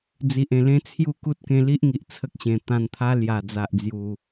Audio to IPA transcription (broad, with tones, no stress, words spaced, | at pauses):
d͡zi˨ʔẽ˨˩lẽ˦t͡sʰju˥˧ ku˦t̚kẽ˧li˦ʔŋi˨ʔ t͡sʰə˦k̚ɕẽ˨˩ t̪ã˧nt̪ʰa˦ lja˨˩d͡za˨ʔd͡zju˨˩